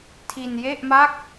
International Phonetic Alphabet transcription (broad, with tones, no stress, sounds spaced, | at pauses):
tʰ i˧ n j e˥˩ ʔ m a˥˩ k̚